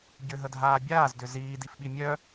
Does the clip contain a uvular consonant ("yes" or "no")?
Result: no